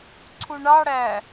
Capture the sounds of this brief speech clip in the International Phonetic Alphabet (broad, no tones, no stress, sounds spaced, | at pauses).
ǀʰ u ɳ ɑ ɽ æ